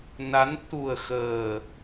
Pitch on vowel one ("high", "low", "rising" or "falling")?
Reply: rising